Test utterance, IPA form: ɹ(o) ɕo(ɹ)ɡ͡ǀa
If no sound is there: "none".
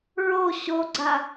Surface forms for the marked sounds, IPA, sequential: o, none

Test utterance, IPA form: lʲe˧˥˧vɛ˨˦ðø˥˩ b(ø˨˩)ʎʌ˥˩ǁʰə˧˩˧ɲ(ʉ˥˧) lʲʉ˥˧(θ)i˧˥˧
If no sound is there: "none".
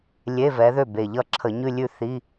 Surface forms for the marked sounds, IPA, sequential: e˨˩, ʉ˥˧, θ

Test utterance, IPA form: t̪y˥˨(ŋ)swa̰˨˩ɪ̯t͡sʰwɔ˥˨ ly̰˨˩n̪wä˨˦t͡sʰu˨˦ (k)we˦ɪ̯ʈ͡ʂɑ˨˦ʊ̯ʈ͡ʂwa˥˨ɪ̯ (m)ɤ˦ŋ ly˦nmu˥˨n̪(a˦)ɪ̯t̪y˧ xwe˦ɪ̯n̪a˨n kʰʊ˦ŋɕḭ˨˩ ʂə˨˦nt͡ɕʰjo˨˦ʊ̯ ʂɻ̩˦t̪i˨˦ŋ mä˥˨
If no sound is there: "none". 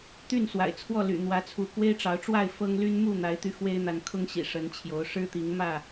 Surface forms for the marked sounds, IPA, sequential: n, k, f, a˨˦

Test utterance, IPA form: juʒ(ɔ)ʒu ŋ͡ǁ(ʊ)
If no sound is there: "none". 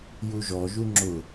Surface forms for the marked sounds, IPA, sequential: ɔ, ʊ

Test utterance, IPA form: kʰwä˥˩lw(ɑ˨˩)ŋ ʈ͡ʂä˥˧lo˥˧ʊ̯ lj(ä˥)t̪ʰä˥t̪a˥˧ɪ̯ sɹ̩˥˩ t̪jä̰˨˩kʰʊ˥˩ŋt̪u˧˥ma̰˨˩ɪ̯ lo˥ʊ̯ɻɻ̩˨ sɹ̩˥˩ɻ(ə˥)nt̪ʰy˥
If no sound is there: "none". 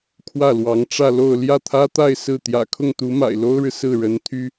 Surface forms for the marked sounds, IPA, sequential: ɑ˧˥, ä˥˩, ə˧˥

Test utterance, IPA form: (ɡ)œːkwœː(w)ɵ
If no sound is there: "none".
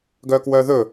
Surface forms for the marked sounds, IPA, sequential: ɡ, ð

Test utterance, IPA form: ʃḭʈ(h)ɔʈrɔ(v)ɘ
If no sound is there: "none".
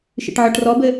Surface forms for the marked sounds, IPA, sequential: ʕ, b

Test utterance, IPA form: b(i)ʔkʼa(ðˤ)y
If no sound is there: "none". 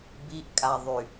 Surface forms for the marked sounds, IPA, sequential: i, ðˤ

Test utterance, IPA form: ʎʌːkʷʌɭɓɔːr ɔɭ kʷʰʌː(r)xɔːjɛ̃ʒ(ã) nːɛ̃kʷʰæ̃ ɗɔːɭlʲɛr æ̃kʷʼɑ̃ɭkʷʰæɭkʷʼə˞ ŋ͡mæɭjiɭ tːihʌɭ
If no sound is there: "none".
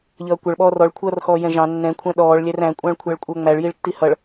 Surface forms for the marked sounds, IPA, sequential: r, ɑ̃

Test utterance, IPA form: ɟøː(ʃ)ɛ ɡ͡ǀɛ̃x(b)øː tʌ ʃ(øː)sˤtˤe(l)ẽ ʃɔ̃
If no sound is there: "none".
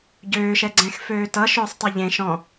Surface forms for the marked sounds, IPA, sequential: ʃ, f, øː, ʎ

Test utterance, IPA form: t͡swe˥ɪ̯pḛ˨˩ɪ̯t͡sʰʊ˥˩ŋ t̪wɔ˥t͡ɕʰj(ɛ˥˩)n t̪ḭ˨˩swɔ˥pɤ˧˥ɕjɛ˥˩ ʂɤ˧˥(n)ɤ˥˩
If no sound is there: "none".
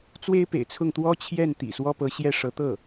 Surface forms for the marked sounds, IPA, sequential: ɛ˥˩, t̪

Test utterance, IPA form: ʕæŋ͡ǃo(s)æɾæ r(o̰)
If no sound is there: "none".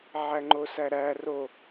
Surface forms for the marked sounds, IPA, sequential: s, o

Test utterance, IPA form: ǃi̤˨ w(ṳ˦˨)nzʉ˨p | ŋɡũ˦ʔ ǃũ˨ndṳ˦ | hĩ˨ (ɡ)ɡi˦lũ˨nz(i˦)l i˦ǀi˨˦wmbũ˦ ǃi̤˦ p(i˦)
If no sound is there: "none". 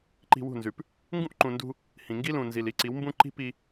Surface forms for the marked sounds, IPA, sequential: ṳ˦˨, ŋ, i˨, i˦

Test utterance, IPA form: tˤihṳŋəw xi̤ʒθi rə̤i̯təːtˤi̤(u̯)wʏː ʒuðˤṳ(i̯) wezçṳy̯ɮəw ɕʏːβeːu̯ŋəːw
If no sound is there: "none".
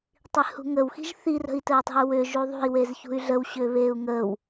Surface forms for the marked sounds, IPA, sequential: u̯, i̯

